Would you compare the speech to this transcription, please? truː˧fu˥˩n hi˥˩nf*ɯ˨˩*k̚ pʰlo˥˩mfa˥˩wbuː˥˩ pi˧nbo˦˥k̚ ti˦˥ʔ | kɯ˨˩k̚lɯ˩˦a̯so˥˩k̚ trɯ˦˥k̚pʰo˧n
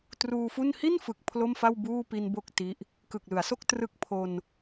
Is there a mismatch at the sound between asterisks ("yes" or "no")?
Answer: no